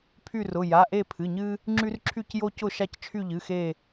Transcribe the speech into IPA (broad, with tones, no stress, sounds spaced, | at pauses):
pʰ y˦˨ r ʊ˩˧˩ j a˩˧˩ ʔ e˦˨ pʰ ɨ˩˧˩ ɲ ɨ˦ | ŋ͡ǁ y˦ r ǁʰ y˦˨ c j o˦ c ʊ˦˨ ʃ a˦˨ c t͡ʃʰ y˦˨ ʎ ɨ˩˧˩ x e˦˨